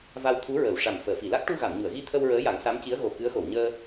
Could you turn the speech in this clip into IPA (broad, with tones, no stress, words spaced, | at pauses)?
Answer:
va˧wt̪ʰu˧˥ɹə˨˩˨w ʂa˨˩m fəː˨˩˨fi˨˩˨la˦˥k̚ ʈu˧ɣa˨˩˨mɲu˨˩˨ə̯ɣi˧ t̪ʰə˧w ɹəː˧˥ja˨˩˦ŋsa˧˥mci˧˥ə̯ ɣo˨˩kɨ˧˥ə̯xo˨˩˨wɲəː˧